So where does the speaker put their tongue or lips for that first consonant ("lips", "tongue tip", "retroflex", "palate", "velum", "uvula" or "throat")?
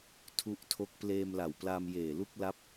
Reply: tongue tip